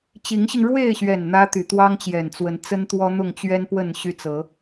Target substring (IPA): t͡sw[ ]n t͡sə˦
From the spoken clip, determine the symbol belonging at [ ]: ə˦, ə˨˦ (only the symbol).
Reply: ə˨˦